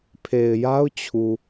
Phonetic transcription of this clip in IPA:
pʰ e˨ ɪ̯ j a˦ ʊ̯ t͡ɕʰ u˨

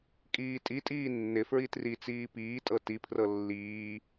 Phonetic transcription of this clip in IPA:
kʼ iː tʼ i tʼ iː nː ɪ f ɹ i t r i t͡s iː p iː tʼ ɤ t i pʰ r ɤ lː iː

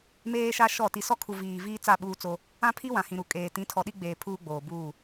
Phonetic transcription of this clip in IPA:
m eː˦ ʃ a˦ ʃ ɔ˦˨ t i˨ s ɔ˦ kʰ u˨ v iː˨ v iː˦ t͡s a˦˨ ɓ uː˦ t͡s o˦ | ã˦ pʰ i˦ w ã˨ h ĩ˨ ɾ u˨ kʼ eː˨ t ĩ˨˦ tʰ ɔ˨ ɗ i˦ ɡ͡b eː˨ pʰ uː˦ ɡ͡b oː˨ b uː˦˨

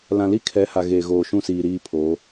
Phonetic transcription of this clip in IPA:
l ã˨ l i˦ kʰ ɛ˨˦ h a˨ ɣ eː˨ ɣ oː˨ ʃ ũ˦˨ s iː˨ ɾ iː˦ pʰ oː˨˦

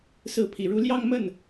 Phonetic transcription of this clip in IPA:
s ɹ̩˧˥ pʰ i˨˩ ɻ u˧˥ l j ɑ˥˧ ŋ m ə˥˩ n

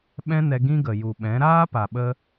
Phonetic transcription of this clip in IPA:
ɓ ɛ̃˦ n ɛ˧ ɡ ĩ˦ ɡ ə˨ j u˨ ɓ ɛ̃˨˦ ɾ aː˦ p a˨ ɓ ə˧

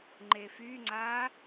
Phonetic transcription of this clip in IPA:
ŋ͡ǃ e f y ŋ͡ǀ aː

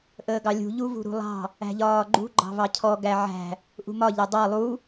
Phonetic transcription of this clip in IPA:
ʔ əː ɡ ɑ lʲ ṳ ʎ u v ṳ ɾ ṳ lˠ ɑ̤ | æ̤ ʎ ɒː ɡ͡ǃ ṳ ɡ͡ǃ ɑ̤ v ɑ cʰ ɔ ɡ æ ʕ æ̤ | ʔ ṳ m ɒ ʎ æ dˤ ɑ lˠ u

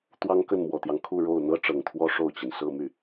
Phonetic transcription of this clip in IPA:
t̪ w ɑ˥ ŋ k ə˥˩ n m w ɔ˨˩ t̪ j ɑ˦ ŋ kʰ u˥˧ ɻ o˥˩ ʊ̯ n̪ ɤ˥ ʈ͡ʂ ɤ˨˩ ŋ t̪ʰ w ɔ˥ ʂ o˥˩ ʊ̯ t͡ɕ i˩ n s ɤ˥˧ m y˥˩

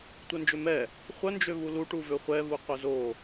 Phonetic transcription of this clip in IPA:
tʷ œ n d͡ʒ ø m ɛ | χʷ œ n d͡ʒ ø v u l u ʈ u v ø χʷ ɛ v u qʷ œ z o

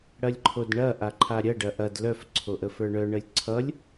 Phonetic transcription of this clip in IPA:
ɽ ɐ lʲ ǃʰ o d ɳ ɐ ʔ a ǃʰ a ɾʲ ɐ ɖ ɐ ʔ ɐ d l œ f ǀʰ o ʔ ə f ə˞ ɳ œ ɳ ə lʲ ǀʰ ʌ lʲ

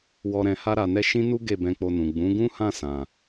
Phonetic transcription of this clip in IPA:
w ɔ˧ ɾ ɛ̃˧ h a˦ ɾ a˧ n ɛ˦ ʃ ĩ˦ n u˦ ɡ e˦˨ b ɛ̃˧ k͡p o˧ n ũ˨ ɡ͡b ũ˨˦ ɡ ũ˦ h ã˦˨ s ã˨

